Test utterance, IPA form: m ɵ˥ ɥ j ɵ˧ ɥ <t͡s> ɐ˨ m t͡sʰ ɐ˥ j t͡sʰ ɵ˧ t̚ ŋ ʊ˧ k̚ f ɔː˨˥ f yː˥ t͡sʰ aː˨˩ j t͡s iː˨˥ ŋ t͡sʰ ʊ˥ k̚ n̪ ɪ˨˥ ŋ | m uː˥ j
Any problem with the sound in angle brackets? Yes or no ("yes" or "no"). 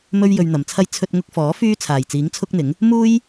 yes